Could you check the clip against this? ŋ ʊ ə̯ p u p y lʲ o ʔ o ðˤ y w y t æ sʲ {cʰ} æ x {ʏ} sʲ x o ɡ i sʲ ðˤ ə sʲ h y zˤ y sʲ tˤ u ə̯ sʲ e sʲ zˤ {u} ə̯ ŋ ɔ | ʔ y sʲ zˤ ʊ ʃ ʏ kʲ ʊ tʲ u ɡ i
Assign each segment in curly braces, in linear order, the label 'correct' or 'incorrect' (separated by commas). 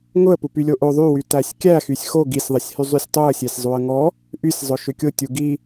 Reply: incorrect, incorrect, correct